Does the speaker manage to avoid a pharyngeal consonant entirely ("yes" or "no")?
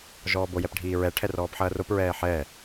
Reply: no